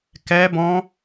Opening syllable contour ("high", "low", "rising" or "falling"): high